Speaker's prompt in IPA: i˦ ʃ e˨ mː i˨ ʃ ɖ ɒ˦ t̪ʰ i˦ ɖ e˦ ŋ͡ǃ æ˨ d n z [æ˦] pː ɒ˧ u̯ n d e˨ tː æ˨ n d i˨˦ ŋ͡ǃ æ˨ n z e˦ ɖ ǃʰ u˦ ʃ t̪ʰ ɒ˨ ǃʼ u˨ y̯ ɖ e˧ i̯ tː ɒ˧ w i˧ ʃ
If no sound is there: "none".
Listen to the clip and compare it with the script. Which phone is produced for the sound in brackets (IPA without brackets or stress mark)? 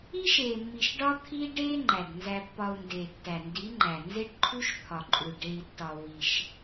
æ˧